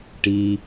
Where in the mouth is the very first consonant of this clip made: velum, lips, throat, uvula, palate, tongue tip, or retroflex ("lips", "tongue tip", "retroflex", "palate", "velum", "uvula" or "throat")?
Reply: retroflex